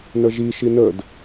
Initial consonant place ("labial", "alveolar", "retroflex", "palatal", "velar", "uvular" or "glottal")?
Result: alveolar